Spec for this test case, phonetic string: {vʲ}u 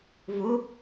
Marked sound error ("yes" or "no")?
yes